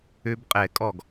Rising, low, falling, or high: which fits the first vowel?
high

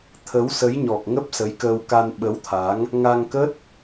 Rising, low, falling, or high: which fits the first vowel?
rising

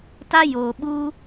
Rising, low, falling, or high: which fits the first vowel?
high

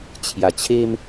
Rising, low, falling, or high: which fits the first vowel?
low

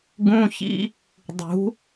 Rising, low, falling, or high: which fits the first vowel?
high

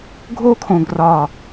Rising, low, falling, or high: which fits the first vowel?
high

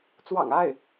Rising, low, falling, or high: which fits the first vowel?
low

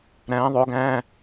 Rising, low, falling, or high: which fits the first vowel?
rising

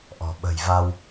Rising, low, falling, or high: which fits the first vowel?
low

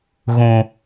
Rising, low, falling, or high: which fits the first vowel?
low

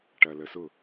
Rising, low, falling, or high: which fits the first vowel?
low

